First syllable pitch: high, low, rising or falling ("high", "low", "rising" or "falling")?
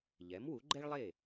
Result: rising